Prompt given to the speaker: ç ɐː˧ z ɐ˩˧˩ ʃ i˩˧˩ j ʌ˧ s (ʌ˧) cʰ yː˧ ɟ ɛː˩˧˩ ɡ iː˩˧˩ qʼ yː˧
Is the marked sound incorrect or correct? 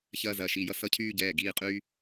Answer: correct